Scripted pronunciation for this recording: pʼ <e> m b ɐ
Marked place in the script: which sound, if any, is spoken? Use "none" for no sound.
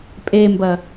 e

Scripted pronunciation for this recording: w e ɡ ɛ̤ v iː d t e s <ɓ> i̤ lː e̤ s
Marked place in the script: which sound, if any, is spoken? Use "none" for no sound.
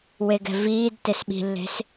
ɓ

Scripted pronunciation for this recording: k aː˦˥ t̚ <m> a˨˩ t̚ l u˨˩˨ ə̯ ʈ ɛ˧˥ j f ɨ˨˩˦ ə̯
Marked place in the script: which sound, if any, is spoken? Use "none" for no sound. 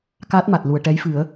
m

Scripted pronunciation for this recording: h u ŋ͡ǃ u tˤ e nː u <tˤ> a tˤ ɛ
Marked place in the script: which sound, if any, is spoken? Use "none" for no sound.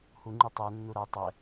ɾ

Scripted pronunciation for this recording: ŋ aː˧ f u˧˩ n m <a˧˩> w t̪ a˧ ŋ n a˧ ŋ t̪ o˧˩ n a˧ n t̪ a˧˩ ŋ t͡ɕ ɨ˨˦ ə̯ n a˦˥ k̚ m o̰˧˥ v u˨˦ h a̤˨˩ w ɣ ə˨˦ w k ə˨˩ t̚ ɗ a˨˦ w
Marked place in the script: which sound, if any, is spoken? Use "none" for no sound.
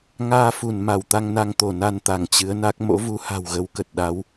a˧˩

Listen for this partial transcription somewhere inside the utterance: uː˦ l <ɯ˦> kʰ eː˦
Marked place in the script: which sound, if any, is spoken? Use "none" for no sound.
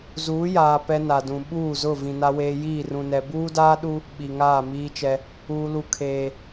u˦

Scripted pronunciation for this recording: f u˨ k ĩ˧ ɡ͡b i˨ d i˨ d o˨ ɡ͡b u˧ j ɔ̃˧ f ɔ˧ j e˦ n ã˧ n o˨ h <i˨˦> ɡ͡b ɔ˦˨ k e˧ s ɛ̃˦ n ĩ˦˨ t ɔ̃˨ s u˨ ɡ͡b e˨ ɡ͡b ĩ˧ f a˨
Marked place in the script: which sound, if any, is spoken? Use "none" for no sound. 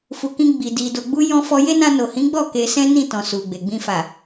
ĩ˨˦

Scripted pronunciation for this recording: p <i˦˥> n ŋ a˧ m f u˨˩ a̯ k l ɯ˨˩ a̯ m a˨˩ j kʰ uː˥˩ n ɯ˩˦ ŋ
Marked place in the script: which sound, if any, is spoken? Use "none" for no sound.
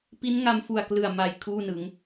i˦˥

